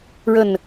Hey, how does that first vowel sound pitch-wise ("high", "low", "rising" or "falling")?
falling